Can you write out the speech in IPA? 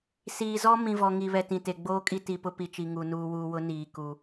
siː˨zɔ˦ mĩ˨vɔ˨ ŋi˨βɛ˨ tĩ˨te˨ɡ͡boː˦kʼi˦ ti˨ pʊ˦pi˨t͡ʃi˨ŋu˨ nuː˨wuː˨wʊ˨˦ niː˨ku˨

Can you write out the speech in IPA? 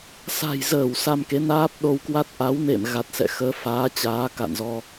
sa̤˨˩jzəː˧˩w sa˧mke˨˦ naː˦˥p̚ɗo˧wkwa˦˥t̚ ʔa˨˦wnḛ˧˨m ɣa˨˩t̚sɛ̰˧˨xəː˨˦faː˨˦ t͡ɕaː˨˦ka̰˧˨nzɔ˧

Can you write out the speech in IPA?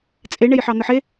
t͡sʼeɳej ħɑn̪əħe

